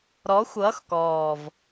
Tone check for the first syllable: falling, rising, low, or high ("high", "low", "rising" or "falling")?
rising